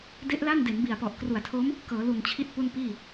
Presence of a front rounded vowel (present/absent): absent